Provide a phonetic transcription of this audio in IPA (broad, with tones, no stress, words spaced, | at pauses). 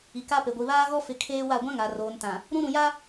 i˨ka˦pe˨ ɡʷi˨βaː˦ɣɔ˦fɪ˨˦ kʰeː˦wa˦˨ ɡʷã˦ŋa˨ roː˨ntã˨ | ɾũ˦ɾũ˨ja˦